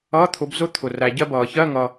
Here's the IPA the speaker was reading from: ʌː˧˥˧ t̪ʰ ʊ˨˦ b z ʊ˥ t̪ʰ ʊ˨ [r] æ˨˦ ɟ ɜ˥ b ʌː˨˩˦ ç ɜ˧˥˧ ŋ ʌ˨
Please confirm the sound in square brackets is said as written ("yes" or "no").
yes